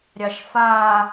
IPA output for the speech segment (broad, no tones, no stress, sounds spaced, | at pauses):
ɾʲ ɑ ʃ f aː